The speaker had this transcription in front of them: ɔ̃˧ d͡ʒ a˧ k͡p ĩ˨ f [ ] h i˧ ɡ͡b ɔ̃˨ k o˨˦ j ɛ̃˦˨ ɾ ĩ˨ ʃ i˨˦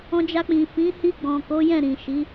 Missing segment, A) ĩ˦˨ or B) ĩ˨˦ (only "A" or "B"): B